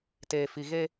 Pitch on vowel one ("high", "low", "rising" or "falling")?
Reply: low